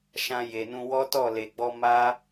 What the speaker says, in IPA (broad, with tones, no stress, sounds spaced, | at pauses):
ʃ ã˧ j e˨ n ũ˧ w ɔ˦ t ɔ˦˨ l e˨ ɡ͡b ɔ˧ m a˦